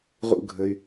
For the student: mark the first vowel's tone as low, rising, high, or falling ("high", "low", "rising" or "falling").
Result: high